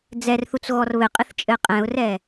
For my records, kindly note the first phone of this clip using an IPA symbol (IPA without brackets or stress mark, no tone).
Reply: d͡z